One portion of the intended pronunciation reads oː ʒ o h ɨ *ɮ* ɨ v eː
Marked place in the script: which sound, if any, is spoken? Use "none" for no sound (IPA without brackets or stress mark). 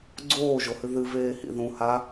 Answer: ð